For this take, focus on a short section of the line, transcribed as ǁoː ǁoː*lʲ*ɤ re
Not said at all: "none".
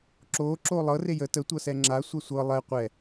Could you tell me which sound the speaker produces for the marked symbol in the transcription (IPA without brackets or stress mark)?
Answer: lˠ